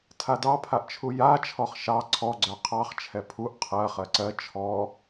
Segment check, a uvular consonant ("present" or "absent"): present